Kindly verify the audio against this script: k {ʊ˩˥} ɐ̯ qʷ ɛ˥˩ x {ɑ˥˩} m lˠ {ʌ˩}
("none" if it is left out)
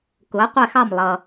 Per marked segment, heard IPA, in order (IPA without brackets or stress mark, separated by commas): ʊ˩˥, ɑ˥˩, ʌ˩